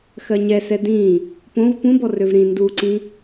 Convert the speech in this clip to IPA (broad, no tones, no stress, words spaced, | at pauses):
xɜɲɛsɛ dĩ | põv pũ bɔrøvɾĩ nduǀĩ